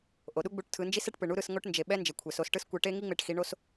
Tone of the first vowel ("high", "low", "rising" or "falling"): low